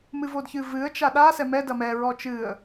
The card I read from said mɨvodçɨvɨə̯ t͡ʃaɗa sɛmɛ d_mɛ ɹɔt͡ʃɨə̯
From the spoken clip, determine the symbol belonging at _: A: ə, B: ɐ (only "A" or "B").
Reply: B